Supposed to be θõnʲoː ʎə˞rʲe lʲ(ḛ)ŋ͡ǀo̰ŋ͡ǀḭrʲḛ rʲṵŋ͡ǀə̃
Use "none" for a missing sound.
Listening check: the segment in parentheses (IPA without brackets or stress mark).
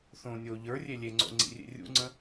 e